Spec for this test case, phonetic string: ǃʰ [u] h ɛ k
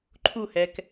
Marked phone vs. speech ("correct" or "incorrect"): correct